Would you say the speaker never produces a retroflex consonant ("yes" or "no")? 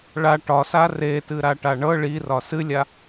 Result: no